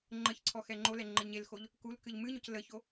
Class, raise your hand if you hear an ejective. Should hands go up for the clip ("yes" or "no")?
no